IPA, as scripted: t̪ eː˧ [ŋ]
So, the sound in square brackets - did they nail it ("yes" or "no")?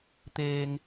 yes